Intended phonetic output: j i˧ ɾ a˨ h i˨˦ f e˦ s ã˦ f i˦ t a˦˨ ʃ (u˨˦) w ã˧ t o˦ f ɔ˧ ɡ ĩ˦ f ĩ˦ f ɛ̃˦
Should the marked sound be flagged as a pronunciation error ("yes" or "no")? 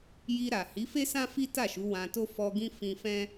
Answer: no